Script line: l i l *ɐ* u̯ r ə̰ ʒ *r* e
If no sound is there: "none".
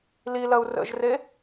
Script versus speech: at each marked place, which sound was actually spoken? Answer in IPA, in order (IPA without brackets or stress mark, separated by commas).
ɐ, r